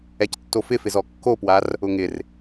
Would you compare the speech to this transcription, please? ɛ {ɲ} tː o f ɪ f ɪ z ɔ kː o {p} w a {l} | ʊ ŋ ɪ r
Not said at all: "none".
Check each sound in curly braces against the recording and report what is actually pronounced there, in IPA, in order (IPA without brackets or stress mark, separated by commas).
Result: c, p, r